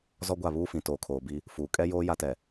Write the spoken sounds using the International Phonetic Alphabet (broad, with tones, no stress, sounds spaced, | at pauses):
z ɔ˦ ɡʷ a˦˨ β uː˦ f ĩ˨ t oː˨ kʰ oː˨ b i˦ | f uː˨ kʼ ɛ˦ j oː˦ j a˦ t ɛ˨